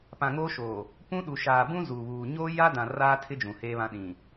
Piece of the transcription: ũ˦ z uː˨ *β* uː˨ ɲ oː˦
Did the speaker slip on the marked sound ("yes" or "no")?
no